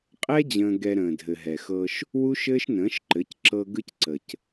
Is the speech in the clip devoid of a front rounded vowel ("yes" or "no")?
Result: yes